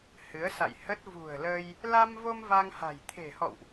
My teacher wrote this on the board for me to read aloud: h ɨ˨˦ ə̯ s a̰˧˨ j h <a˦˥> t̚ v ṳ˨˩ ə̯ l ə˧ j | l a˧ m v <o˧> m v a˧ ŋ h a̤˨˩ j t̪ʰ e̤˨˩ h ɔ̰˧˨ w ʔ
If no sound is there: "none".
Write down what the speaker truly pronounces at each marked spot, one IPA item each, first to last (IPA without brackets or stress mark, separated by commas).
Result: ə˦˥, o˧